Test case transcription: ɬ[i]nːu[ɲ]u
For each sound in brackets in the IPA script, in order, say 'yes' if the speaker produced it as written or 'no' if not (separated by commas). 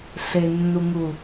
no, no